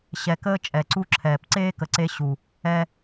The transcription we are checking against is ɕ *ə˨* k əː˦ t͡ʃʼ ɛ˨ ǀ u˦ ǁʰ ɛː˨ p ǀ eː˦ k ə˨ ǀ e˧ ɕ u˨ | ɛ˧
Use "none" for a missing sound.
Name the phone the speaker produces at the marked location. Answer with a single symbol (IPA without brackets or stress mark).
ɛ˨